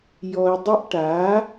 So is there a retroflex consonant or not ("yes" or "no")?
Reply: yes